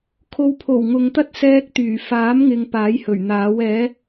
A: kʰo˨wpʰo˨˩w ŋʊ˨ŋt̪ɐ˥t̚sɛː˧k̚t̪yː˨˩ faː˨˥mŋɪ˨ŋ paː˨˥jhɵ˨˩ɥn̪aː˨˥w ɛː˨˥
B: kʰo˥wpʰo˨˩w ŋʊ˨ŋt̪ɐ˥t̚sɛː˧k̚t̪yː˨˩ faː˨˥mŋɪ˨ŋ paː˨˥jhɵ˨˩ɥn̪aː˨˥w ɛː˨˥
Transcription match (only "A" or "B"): A